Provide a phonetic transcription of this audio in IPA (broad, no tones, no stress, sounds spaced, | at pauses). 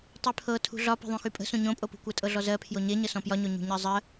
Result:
tˤ y pʰ ɤ tʰ ṳ ɮ ɒ p e̤ ðˤ ũ x y pʼ ə̤ s ũ ɲ õ pʼ o p ṳ kʷ ɜ tʼ ɤ ɮ ɔ z ɜ pʰ j o ɲ e ɲ ə s ɔ̃ p j ɒ ɲ o ɲ ṳ ɲ ɜ zˤ ɜ